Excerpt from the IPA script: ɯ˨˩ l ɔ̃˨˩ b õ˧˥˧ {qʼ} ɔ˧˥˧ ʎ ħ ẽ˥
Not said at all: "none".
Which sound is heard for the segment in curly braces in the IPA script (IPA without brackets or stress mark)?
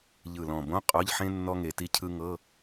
qʼ